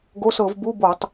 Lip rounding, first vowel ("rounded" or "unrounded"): rounded